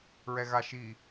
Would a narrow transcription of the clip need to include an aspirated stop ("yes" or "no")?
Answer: no